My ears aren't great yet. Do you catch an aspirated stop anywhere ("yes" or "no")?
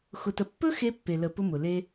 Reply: no